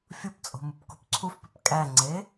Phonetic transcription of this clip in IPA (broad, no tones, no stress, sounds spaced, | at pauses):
fʲ u p t͡sʼ o̤ m u p k ṳ p ǀʰ u f p ʉ p kʼ æ ŋ͡ǀ e